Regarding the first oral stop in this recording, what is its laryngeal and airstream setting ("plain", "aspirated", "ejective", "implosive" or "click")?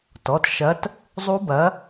plain